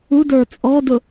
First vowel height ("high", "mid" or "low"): high